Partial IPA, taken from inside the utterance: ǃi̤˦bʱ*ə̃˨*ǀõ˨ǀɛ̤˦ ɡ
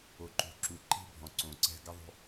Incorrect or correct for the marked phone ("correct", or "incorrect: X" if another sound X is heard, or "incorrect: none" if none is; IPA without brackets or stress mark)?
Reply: incorrect: ɔ̃˨